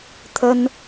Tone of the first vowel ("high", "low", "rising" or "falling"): high